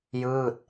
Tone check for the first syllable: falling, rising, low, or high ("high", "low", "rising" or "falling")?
falling